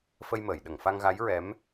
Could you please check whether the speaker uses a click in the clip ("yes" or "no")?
no